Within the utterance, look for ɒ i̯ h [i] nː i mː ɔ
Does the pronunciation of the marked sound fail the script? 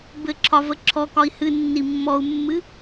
yes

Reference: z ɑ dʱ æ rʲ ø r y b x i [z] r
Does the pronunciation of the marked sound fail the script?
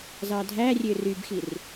yes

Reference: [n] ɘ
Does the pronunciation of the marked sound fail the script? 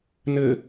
no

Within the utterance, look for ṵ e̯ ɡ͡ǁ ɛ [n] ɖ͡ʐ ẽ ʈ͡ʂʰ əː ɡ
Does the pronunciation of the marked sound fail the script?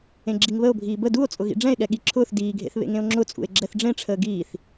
yes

